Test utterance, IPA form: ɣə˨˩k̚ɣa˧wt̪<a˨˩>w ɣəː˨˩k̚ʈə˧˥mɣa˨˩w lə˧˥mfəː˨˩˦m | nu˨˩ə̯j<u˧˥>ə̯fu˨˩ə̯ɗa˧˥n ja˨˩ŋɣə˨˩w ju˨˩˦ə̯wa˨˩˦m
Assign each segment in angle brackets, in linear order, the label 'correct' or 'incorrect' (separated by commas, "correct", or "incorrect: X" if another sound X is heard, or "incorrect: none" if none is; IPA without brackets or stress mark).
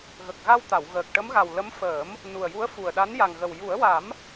incorrect: a˨˩˨, correct